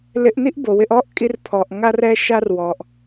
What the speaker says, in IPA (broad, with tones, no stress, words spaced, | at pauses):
lɪ˧ʔni˦ʔbo˨wɪ˧ʔ ɔ˦ʔkʼi˧r pʰɔ˨ʔŋa˧rɛ˧ ʃa˧rwɔ˨ʔ